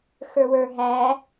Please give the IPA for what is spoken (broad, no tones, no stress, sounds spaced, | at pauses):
x ə˞ w ə˞ ɦ æ